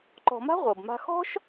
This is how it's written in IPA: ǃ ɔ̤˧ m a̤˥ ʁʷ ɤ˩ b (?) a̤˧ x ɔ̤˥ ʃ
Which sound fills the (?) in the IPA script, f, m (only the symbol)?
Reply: m